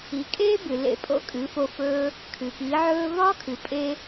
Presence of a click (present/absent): absent